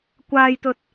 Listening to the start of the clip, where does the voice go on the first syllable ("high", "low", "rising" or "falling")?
low